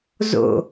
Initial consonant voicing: voiced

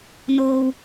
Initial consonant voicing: voiced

